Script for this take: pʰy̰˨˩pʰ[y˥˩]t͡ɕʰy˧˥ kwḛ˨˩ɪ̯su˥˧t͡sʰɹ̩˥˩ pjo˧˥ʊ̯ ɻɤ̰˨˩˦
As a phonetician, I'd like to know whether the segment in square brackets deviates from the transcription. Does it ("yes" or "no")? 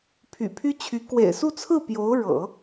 yes